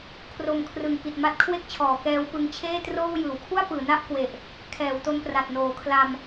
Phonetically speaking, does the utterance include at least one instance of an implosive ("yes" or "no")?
no